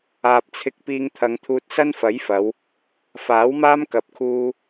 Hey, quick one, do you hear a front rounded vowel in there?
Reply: no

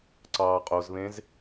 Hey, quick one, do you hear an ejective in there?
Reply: yes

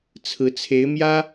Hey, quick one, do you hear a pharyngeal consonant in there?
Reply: no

